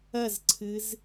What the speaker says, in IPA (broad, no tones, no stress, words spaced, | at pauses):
ɐzǀʰɨz